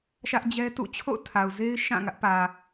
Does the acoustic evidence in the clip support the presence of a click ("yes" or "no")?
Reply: no